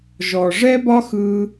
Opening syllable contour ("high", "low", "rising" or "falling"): low